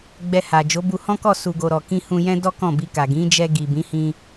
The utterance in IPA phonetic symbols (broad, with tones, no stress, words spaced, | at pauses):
ɡ͡bɛ˧ha˨ d͡ʒo˨˦bu˧hɔ̃˦kɔ˦˨ su˨ ɡo˨ɾɔ˨kĩ˧ hũ˧jɛ̃˦dɔ˦ kɔ̃˦˨bi˧ka˨ ɡĩ˨˦ d͡ʒɛ˧ɡi˨bĩ˨˦ hĩ˧